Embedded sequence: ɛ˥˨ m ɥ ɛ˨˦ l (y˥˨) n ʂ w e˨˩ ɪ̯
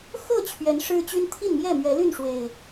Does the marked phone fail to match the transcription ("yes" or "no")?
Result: no